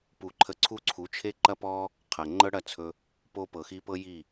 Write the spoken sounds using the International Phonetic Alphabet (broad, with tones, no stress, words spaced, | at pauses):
pu˨ ǃʰə˧ǀʰu˦ǀʰu˨˦ t͡ʃʰe˦ǃɐ˦pɔ˦ | qʰɐ˨ ŋ͡ǃɤ˦ɽɐ˦˨t͡sʰɵ˧ | po˦pɤ˨xi˦ pɤ˦ji˦˨